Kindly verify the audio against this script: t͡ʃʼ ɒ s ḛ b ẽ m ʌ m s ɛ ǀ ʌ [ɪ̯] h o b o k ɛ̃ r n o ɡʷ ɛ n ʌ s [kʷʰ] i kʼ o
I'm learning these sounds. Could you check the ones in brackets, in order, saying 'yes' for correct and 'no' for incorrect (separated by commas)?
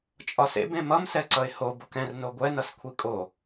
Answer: yes, yes